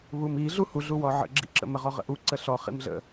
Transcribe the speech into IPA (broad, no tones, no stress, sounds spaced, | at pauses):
β u m i ɮ u h u ɮ u w ɔ ʕ ə̰ ɡ͡ǁ ḭ ǁ ə̰ m ə ʁ ɔ ʁ ə̰ ʔ u ǀ ə ɬ ɔ χ ḭ m ɮ ə̰